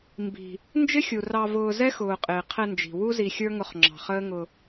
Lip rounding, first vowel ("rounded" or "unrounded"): unrounded